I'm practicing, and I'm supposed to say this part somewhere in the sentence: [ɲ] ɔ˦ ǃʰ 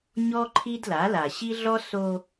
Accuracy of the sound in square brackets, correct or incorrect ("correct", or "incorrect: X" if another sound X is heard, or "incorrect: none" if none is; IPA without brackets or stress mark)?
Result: correct